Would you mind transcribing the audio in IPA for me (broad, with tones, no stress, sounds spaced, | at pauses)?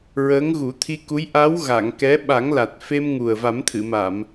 ɹ əː˧˥ ŋ ɣ u˨˩˦ t̪ʰ i˧ k u˧˥ j ʔ a˧˥ w ɣ a˨˩˨ ŋ k ɛ˧˥ ɓ a˨˩˦ ŋ l a˨˩ t̚ f e˧ m ŋ u˨˩ ə̯ v a˨˩˦ m t̪ʰ ɨ˨˩˨ m a˨˩˨ m